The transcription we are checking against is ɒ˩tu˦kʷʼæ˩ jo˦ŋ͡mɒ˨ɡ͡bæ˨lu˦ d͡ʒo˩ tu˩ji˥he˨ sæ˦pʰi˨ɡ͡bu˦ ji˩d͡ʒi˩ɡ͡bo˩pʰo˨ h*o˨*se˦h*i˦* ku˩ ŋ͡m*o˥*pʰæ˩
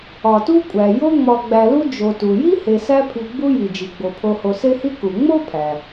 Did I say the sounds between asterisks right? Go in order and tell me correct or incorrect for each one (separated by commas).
correct, correct, correct